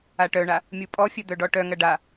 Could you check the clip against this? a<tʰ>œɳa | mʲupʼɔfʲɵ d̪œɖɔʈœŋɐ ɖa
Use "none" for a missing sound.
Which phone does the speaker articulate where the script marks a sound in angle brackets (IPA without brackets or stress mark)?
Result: ʈ